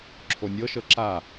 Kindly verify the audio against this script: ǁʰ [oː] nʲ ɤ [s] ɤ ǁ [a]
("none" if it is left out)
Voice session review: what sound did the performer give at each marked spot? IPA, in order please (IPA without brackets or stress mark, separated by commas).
o, ʃ, a